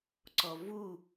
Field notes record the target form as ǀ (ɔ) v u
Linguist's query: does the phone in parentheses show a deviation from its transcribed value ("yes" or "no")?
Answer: no